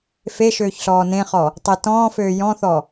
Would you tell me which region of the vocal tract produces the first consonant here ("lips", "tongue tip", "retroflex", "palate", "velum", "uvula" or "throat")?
lips